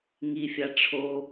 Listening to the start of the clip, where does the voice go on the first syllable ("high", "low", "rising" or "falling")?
low